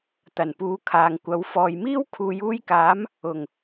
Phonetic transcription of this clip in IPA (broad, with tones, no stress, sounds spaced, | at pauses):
t̪ ɐ˨˩ n p uː˨˧ kʰ aː˨ ŋ kʷ ɐ˨˥ w f ɔː˨ j m iː˥ w kʰ uː˨˧ j uː˧ j k aː˨˥ m | ʊ˨˩ ŋ